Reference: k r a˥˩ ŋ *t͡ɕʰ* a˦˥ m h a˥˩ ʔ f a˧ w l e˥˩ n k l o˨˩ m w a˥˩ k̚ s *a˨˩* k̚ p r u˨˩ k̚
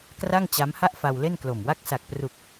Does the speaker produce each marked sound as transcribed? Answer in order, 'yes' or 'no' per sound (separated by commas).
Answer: no, yes